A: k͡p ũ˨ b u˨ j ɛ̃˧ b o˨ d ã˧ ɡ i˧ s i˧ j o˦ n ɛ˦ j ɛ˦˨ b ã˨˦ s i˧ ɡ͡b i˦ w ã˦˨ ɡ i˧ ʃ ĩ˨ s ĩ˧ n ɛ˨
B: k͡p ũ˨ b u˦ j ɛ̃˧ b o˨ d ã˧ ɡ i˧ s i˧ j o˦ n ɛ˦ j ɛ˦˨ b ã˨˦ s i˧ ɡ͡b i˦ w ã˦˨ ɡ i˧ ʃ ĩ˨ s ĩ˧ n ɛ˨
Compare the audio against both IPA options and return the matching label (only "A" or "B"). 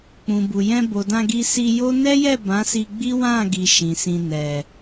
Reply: A